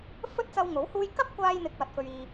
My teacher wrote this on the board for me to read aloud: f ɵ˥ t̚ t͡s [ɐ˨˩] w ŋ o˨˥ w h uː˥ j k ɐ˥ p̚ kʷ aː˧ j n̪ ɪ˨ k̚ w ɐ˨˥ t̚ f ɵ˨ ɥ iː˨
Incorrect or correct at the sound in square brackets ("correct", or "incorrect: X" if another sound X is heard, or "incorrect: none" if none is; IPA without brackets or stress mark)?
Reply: incorrect: ɐ˧